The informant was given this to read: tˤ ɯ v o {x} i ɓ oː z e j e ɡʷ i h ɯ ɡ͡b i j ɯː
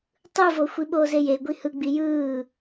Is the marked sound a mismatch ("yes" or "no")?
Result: yes